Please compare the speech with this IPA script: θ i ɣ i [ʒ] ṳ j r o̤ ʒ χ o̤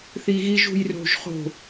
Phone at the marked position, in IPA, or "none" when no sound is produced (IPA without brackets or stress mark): ʒ